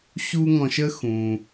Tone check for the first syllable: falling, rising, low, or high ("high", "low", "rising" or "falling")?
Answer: high